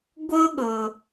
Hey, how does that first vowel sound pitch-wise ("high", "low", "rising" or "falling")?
high